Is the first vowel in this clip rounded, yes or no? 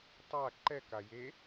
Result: no